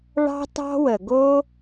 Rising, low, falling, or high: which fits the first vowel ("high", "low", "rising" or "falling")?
high